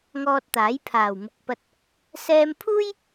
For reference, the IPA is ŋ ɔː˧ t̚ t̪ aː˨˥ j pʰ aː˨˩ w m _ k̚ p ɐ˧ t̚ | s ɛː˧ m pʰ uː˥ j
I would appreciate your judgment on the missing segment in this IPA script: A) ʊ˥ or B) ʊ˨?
B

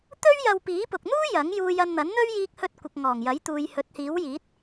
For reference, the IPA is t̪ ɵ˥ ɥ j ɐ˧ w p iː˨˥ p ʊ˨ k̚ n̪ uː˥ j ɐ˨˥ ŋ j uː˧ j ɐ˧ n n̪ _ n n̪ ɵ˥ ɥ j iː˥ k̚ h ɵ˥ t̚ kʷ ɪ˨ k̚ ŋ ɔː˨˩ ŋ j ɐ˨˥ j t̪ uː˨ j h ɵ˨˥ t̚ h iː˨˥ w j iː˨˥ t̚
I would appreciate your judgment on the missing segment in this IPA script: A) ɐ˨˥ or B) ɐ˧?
A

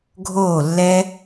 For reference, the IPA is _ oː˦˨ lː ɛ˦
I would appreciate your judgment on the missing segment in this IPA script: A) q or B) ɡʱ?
B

